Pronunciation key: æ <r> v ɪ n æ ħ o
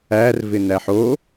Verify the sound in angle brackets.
correct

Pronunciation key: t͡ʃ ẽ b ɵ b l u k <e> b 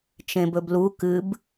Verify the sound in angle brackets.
incorrect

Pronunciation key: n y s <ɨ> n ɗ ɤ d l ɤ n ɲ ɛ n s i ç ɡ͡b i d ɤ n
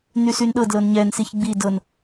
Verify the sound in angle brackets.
incorrect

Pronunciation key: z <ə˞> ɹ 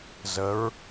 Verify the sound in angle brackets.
incorrect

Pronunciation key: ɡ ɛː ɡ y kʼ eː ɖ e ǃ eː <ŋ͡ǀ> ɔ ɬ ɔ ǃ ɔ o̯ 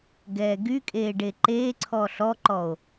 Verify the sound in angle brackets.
incorrect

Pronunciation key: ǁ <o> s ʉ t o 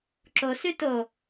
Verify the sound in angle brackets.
correct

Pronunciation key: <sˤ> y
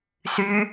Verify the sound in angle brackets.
incorrect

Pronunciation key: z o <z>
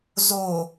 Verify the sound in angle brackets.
incorrect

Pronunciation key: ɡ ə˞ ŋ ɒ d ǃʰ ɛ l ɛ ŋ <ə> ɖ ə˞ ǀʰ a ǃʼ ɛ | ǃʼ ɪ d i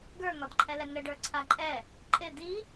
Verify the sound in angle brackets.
correct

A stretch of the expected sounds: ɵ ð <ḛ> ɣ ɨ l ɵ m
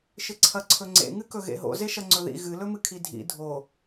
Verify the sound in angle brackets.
incorrect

